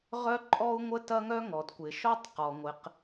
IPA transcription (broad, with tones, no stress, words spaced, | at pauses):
ʁœ˥ǃʼɔ˥u̯ŋʷə˥ tɐ˥ŋœ˥ŋɔ˩dkʷɪ˩ ʃɔ˥tˤqɔ˩ ŋʷɪ˩q